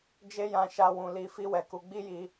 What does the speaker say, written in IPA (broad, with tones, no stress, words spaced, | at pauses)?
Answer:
d͡ʒe˦jã˧ʃa˧ wũ˨li˨˦ fi˦wɛ˧ku˧ ɡ͡bi˦ji˧